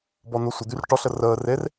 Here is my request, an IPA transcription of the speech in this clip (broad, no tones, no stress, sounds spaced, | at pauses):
b ɔ n o sʷ ə d̪ y r ʈ ɔ ɬ ə r əː r e r